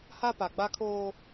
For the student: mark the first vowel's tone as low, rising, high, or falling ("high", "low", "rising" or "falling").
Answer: high